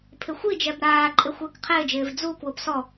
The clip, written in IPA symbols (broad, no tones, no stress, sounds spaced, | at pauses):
pʰ ɪ xʷ i d͡ʒ ɛ b ɾ aː ǃʼ ɪ xʷ ɪː k qʰ ɪː d͡ʒ ɪː v d͡z u k w ʊ p s ɔ